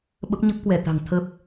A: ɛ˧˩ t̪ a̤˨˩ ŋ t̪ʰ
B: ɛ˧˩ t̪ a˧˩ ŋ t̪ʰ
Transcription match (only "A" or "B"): A